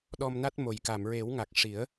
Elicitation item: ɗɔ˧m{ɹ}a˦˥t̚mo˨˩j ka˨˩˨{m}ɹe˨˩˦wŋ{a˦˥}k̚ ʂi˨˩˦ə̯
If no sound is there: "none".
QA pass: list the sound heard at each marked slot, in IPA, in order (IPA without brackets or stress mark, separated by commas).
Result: n, m, a˨˩